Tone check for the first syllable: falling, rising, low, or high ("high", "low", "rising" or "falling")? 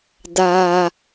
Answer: low